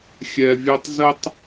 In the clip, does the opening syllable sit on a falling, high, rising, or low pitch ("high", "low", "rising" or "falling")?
low